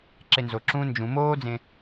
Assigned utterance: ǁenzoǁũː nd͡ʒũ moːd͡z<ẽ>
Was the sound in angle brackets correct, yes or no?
yes